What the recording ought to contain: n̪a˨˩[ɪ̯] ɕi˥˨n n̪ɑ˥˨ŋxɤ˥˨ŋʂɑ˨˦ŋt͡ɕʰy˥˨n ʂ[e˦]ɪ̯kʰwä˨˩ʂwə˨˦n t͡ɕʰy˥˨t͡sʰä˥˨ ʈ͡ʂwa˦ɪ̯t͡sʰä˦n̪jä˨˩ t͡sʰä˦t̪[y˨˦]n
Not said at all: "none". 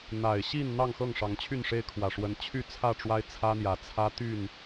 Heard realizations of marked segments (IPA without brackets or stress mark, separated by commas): ɪ̯, e˦, y˥˨